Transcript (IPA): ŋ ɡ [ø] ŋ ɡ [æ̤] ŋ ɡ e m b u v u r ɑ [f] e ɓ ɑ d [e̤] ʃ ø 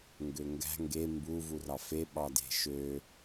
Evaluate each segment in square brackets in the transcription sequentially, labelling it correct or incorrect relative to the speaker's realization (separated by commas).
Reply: correct, correct, correct, correct